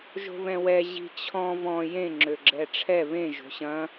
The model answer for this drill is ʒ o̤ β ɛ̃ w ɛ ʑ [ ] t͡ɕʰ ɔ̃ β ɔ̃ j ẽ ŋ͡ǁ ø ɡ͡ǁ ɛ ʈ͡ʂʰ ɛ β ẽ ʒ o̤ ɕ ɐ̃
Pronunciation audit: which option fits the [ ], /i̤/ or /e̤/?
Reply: i̤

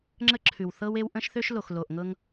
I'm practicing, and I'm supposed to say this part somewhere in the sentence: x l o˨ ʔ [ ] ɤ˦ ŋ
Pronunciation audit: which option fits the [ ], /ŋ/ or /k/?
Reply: ŋ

